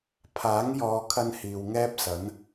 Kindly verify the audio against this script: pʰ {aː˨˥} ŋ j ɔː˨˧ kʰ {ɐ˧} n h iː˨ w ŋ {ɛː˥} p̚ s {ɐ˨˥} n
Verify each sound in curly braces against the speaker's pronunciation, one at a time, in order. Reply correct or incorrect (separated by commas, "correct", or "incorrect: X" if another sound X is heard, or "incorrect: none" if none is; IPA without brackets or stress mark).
correct, correct, correct, correct